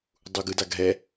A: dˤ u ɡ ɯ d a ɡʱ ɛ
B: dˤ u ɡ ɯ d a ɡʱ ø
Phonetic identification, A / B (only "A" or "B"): A